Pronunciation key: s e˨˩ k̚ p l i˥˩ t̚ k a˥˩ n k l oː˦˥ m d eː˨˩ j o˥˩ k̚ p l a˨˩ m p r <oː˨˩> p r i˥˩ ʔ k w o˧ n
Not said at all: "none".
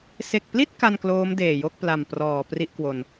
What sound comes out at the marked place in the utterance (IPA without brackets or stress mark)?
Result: ɔː˨˩